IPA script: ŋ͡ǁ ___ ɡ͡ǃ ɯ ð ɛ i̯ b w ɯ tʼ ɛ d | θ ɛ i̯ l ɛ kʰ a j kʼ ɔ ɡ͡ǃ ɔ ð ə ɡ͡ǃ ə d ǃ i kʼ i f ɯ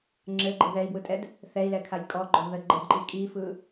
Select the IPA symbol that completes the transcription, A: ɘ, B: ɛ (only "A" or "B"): A